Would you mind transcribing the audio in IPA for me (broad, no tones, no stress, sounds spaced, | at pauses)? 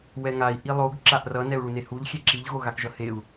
w ɛ ŋ a i̯ ʔ i lˠ o ɡ ǁ a ʔ r ʌ n ɛ u̯ ɭ u n e h u ʎ xʲ e ǁ i ʎ ɣ o ɣ a k ʒ ʌ h e u̯